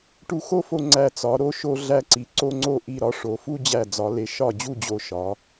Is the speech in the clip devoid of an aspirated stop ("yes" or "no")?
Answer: yes